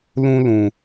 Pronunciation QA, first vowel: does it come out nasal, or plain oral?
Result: nasal